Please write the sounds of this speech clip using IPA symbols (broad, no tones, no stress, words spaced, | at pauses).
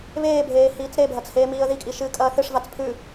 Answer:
βeːbʱeː hiːt͡sɾebʱɐt͡s heːmiːə̯ðikʼi ʃɨːkʼɐːθɨʂvat͡s pʰʉ